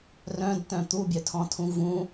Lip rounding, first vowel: rounded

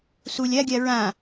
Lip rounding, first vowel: rounded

